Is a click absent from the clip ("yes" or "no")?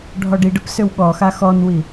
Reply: yes